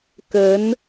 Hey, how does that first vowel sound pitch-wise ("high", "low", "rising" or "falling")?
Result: rising